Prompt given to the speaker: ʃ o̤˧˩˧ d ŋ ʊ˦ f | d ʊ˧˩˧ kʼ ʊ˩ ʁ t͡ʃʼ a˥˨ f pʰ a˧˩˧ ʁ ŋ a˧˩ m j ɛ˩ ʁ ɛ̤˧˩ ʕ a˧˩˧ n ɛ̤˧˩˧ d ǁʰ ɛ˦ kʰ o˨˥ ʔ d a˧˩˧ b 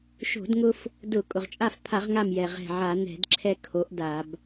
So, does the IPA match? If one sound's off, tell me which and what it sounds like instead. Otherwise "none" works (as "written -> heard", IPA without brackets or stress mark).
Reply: none